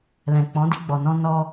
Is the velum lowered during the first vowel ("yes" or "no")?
yes